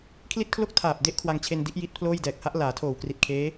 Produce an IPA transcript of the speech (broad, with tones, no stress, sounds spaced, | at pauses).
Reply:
kʰ l i˥˩ t̚ kʰ l o˥˩ k̚ tʰ aː˨˩ p̚ d e˦˥ ʔ kʰ w a˧ ŋ t͡ɕʰ e˧ n d i˦˥ ʔ j i˦˥ t̚ pʰ l oː˥˩ j d ɛː˨˩ k̚ h a˦˥ ʔ l aː˩˦ tʰ oː˨˩ w k r i˨˩ t̚ kʰ eː˦˥